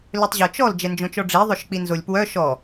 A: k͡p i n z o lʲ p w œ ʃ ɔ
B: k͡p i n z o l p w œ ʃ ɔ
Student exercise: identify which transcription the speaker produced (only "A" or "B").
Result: A